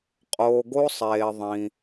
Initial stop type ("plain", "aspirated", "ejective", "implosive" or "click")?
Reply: ejective